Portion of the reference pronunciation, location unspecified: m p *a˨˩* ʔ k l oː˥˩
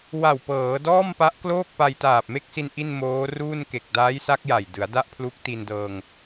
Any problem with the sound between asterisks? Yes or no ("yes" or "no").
yes